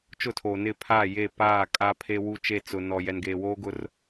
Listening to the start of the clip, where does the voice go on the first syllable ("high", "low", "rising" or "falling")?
falling